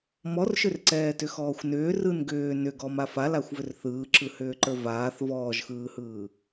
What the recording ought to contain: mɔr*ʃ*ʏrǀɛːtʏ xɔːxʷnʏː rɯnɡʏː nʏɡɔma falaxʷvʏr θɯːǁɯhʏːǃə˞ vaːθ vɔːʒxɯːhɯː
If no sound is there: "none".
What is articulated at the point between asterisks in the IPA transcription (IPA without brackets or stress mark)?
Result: ʃ